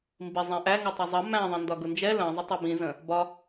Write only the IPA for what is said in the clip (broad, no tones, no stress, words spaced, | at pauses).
mbi zˤɛ̃ʔæ ŋɒtˤɜzˤʌ mæ̃ ðˤə̃ndɒɡʊnd͡ʒɛ lə̃ zˤʊtˤɜbĩ zə̃ | bɒ